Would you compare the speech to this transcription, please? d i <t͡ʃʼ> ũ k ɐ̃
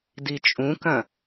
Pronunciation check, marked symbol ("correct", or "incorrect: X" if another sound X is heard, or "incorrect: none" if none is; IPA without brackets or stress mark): correct